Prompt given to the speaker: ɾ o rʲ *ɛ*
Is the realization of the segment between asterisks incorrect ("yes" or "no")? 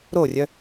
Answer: yes